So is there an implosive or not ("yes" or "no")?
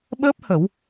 yes